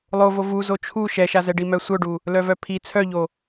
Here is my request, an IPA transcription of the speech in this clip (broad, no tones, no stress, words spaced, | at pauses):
lˠovo vuzo t͡ʃʰu ʃɛʃazɛ ɖimœsʷœɖu | lœvœpʰi t͡sʰœʎo